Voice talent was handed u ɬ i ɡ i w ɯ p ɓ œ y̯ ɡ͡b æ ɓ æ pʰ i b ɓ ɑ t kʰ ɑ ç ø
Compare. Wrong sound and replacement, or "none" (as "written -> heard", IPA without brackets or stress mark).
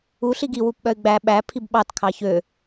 ɯ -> u